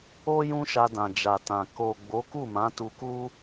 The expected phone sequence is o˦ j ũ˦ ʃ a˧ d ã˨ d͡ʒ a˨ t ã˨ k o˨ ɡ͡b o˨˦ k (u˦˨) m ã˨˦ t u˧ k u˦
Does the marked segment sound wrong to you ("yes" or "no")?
no